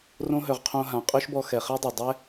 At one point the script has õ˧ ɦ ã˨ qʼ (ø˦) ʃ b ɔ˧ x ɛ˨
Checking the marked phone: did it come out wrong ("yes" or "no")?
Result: no